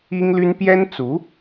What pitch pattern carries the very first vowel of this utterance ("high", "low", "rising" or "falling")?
high